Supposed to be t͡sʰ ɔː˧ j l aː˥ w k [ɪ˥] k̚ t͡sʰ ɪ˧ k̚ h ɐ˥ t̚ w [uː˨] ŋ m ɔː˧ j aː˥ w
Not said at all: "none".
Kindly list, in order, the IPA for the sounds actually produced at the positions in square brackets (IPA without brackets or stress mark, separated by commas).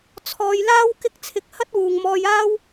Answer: ɪ˥, uː˨